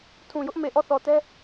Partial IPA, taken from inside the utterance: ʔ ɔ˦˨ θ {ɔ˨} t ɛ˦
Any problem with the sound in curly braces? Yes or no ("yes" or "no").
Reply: no